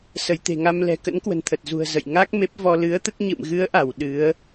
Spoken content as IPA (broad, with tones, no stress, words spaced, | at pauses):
sə˧˩jt̪e̤˨˩ŋa˧m lɛ̤˨˩kə̰˧˥nkwə̤˨˩n t̪ʰə˨˩t̚zṳ˨˩ə̯ zə̰˧˨j ŋa˦˥k̚me˦˥p̚vɔ˧ lɨ˨˦ə̯t̪ə˦˥t̚ ɲɨ̰˧˨mɣɨ˨˦ə̯ʔa˧˩w ɗɨ˨˦ə̯